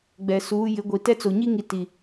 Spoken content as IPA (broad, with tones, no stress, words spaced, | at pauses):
ɡ͡bɛ˨suː˨˦ jɪ˨˦ɡʷi˨ tɛ˦t͡so˨ɲi˦ŋi˨ ti˨